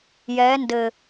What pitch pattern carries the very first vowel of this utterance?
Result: rising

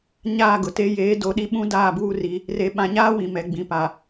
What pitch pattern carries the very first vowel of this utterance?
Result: falling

